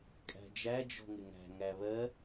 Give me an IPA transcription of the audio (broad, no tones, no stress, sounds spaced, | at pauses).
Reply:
kʼ æ̤ d͡ʒ æ d͡ʒ ɔ̤ ŋ ɪ ŋ æ̤ ŋ æ β ɜ